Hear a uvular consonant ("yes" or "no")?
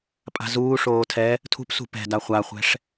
yes